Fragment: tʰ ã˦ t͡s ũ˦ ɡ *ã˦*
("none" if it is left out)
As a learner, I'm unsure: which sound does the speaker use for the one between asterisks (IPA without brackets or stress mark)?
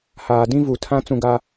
a˦